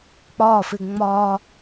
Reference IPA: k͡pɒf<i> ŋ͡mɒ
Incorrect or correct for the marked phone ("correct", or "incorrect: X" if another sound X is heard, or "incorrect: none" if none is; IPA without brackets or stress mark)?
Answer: incorrect: ɪ